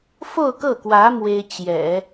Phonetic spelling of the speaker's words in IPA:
f o˥˧ ʊ̯ k ɤ˥˩ k w ä˧˥ m w e˥ ɪ̯ t͡ɕ j ɛ̰˨˩˦

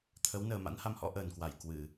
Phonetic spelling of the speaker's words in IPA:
t̪ʰ ə˨˦ w n əː˨˩ m a̰˧˥ n h a˧ m h ɔ̰˧˥ ʔ əː˨˩ n k w a˧˩ j k w ɨ˧˩˨

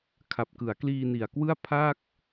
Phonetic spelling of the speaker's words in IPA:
kʰ a˨˩ p̚ k ɯ˩˦ a̯ k l iː˧ n i˨˩ a̯ k w ɯ˥˩ a̯ pʰ a˥˩ k̚

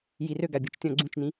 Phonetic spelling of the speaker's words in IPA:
j i r ø ɡ a bʲ u t͡ʃ tʲ ɔ̃ ɡ͡ǀ ũ t͡ʃ n ĩ

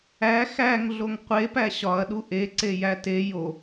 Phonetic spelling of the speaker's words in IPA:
æ x æ ŋ ɮ o ŋ qʷ e p æ ɕ ɒ ɐ̯ ɗ u ʔ e ǀ e j æ t e j o

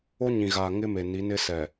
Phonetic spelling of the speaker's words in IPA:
o˦ ɲ ĩ˨ ɣ aː˨ ŋ ɪ˦ m e˨ n i˨˦ n ɪ˦ s ɛ˨

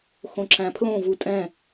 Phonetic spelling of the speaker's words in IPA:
x õ ǁ æ̃ pʰ l õ v u tʼ ɛ̃

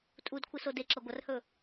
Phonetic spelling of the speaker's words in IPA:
tʼ u d kʷʰ ɨ s o d e ǁ ɐ ɡʷ ɐ r h ɵ

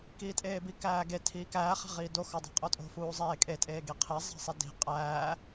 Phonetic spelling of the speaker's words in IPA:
k iː tʼ eː b i k æː ɡ e tʰ iː k æː χ æ̤ ʁ iː d o x ɒ dˤ i̤ qʼ o tʼ o̤ f uː zˤ eː kʼ e tʼ eː ɡ i qʰ e zˤ æ̤ sˤ i d i̤ qʼ æː

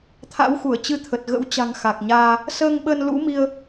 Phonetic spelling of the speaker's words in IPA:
t̪ʰ a̰˧˥ w x u˧˩ ə̯ t͡ɕ ɨ˧ t̪ʰ ə˨˩ t̚ ɣ ə̰˧˥ w t͡ɕ a̤˨˩ ŋ x a˨˩ k̚ ɲ aː˧ | s əː˧ ŋ ɓ ə˧ n l ṵ˧˥ m i˧ ə̯

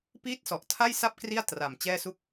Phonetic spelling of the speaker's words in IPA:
p iː˥˩ t̚ s ɔ˨˩ ʔ tʰ a˥˩ j s a˥˩ p̚ k r i˥˩ a̯ t r a˨˩ m t͡ɕ ɛː˥˩ s u˥˩ k̚

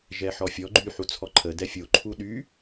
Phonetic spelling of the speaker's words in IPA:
ʒ ɛ ħ ɔ fʲ ɔ ɡ͡ǃ y ħ u t͡sʰ ɔ ǃʰ ə d ɛ fʲ o ǃʰ u ɗ y

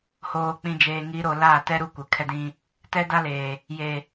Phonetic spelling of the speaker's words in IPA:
h oː˨ k͡p ĩ˨ d͡ʒ eː˨ ŋ i˨˦ ɾ o˨ l aː˦˨ t ɛ˦ ɾ u˦˨ kʷ ɪ˨ kʰ ɛ˦ d ĩ˦ | t ɛ˦ d a˦ l eː˨ | j e˨

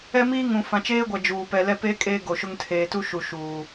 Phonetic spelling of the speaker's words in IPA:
ɛ˦ m iː˦ ŋ ũ˨ f ã˨ t͡ʃ eː˦ ɡʷ a˨ d͡ʒ uː˨ p ɛ˨ l ɛ˦ p eː˦ kʼ eː˦ ɡ o˨ ʃ ʊ˦ ŋ tʰ eː˨ t u˦ ʃ u˨ ʃ uː˨

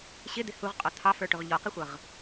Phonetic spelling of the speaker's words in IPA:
ɕ ɪ d̪ ɪ h u ʁ qʼ ɔ t̪ʰ ɑ f ə˞ ʈ ʊ ʁ ʎ ɔ q ɪ xʷ ʌ ʁ

